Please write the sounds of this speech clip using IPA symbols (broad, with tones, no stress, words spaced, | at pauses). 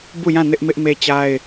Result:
bu˦˨jã˦˨ nɪ˦ʔmɪ˦ʔ me˦t͡ɕa˦ɪ̯